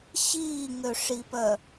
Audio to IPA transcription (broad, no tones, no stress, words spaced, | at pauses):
ɕiːŋøʂipœ